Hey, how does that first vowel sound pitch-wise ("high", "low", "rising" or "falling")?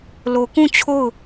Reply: low